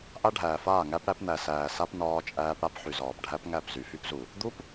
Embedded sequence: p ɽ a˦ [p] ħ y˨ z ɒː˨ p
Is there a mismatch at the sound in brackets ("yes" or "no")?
no